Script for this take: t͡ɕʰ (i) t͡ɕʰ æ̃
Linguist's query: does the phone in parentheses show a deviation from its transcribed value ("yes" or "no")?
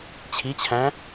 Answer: no